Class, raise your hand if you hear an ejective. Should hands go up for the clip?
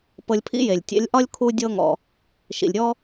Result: no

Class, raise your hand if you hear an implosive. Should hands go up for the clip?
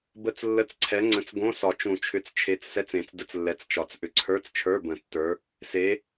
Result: no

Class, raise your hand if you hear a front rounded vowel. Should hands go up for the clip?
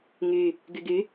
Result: yes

